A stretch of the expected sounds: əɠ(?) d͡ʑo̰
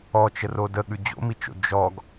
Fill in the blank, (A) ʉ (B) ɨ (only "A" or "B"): A